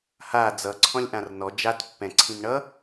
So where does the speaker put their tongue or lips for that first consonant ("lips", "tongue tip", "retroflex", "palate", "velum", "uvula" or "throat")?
throat